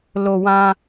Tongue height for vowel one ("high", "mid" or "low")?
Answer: mid